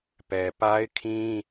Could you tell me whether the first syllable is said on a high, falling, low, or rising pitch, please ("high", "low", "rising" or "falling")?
low